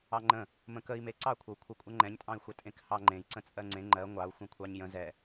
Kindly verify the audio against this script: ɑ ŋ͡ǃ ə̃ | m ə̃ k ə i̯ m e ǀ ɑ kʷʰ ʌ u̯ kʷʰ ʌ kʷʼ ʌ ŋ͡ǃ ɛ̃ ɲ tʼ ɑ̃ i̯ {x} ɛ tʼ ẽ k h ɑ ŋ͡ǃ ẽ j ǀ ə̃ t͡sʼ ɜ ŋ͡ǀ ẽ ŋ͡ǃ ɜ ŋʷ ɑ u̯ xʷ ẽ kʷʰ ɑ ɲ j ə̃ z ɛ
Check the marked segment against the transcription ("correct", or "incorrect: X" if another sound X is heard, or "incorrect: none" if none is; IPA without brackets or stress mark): incorrect: xʷ